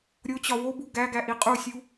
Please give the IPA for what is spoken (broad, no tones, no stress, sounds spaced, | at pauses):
ɾʲ o t͡ɕ ɒ w o b u ɡ æ ɡ æ ʔ i qʼ u sʲ u